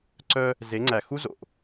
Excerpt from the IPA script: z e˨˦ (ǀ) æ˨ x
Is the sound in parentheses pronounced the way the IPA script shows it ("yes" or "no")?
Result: no